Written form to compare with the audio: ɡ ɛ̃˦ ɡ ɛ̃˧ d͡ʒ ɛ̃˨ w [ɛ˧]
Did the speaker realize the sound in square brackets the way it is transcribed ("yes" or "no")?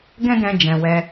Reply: yes